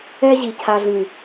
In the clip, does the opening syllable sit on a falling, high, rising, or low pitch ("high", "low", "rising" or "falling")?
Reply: high